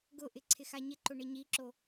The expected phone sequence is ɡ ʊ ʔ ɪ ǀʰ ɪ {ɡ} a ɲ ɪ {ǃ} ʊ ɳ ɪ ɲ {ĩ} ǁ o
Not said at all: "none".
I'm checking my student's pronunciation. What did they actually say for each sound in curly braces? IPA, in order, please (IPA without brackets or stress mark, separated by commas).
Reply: x, ǃ, i